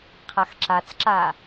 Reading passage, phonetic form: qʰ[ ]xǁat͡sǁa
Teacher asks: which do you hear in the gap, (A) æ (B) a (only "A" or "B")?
B